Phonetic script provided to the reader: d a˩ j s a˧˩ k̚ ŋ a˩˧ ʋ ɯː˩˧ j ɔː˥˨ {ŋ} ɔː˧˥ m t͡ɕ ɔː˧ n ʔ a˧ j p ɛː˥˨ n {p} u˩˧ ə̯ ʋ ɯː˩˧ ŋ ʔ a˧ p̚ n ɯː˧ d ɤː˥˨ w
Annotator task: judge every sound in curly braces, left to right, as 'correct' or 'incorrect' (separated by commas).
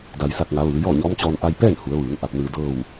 incorrect, incorrect